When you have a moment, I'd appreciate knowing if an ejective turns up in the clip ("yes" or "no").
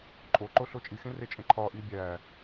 yes